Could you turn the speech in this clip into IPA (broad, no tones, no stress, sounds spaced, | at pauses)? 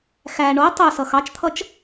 x æ ɳ o tˤ o s ʌ x ɑ t͡ʃ t̪ʰ ʌ t͡ʃ